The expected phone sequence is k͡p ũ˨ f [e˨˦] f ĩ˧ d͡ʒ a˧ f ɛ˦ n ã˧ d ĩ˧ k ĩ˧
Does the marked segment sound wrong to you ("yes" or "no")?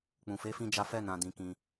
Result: no